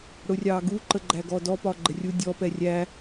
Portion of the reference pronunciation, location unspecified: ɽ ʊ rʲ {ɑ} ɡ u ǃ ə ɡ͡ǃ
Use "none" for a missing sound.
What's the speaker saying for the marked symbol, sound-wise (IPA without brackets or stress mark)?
ɑ